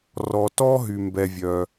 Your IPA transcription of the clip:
r ɔ˨ t ɔ˥ ɦ y˨ m b ɛ˨ vʲ œ˨

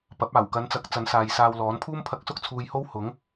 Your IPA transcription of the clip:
p ɐ˨˥ p̚ aː˨˩ w k ɐ˨˧ n t͡s ɐ˨˥ k̚ t͡s ɐ˨˥ n s aː˨ j s aː˧ w l ɔː˨˥ n pʰ uː˥ m pʰ ɐ˧ k̚ s ʊ˥ k̚ t͡sʰ uː˨ j h o˥ w h ʊ˨˥ ŋ

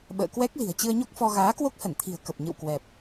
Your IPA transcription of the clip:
ɓ ə̰ː˧˨ k w ɛ˦˥ k̚ l i̤˨˩ ə̯ t͡ɕ ɨ˧ ə̯ ɲ o˦˥ k̚ f ɔ˧ ɣ aː˨˦ k w o˦˥ k̚ h ə˧˩ n t̪ʰ i̤˨˩ ə̯ k ə˨˩ p̚ ɲ ɨ̰˧˨ w k w ɛ˨˩ p̚

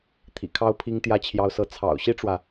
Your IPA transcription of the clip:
t̪ʰ ḭ˨˩ kʰ ɑ˥ ʊ̯ pʰ i˥ ŋ t̪ j ä˥˩ t͡ɕʰ j ɑ˥ ʊ̯ s ɤ˥˩ t͡sʰ ɑ̰˨˩ ʊ̯ ɕ i˥ ʈ͡ʂ w ä˨

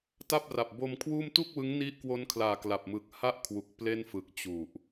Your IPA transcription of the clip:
t a˥˩ p̚ r a˨˩ p̚ b o˧ m kʰ w uː˥˩ m t u˥˩ k̚ w ɯ˦˥ ŋ n i˦˥ ʔ k w o˦˥ n kʰ l aː˨˩ k l a˨˩ p̚ m ɯ˨˩ k̚ h a˥˩ ʔ kʰ w u˨˩ k̚ p l e˥˩ n f ɯ˨˩ k̚ t͡ɕ u˨˩ ʔ

